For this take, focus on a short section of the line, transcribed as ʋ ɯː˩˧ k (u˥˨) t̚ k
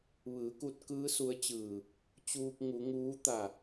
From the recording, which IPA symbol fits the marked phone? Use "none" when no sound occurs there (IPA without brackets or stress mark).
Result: u˧